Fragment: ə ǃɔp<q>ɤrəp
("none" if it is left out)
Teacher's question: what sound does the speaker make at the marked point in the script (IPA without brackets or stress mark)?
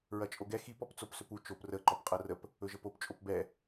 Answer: qʼ